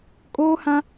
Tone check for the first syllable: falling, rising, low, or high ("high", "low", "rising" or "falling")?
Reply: high